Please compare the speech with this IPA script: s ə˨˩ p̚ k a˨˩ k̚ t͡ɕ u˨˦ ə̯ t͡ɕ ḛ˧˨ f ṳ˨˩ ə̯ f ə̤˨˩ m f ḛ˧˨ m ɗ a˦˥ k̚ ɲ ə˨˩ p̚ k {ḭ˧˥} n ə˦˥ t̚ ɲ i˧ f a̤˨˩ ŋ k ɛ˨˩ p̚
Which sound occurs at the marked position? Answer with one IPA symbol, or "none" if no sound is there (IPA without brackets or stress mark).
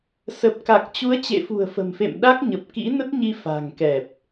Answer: ḭ˧˥